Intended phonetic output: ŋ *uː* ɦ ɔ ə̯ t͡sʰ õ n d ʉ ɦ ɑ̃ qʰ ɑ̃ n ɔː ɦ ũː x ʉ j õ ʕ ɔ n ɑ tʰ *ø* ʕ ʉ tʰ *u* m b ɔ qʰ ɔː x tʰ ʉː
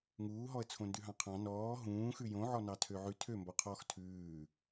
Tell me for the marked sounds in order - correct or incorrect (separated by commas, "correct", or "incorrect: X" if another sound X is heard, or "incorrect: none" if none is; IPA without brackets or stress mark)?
correct, correct, incorrect: ø